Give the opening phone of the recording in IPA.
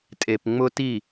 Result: tʼ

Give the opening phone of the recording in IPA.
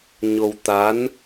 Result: ɲ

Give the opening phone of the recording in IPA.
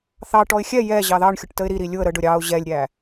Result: θ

